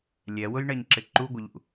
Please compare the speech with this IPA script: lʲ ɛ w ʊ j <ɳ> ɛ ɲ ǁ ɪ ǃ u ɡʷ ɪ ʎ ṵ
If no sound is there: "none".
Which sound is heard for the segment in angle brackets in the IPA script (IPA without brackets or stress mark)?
ɳ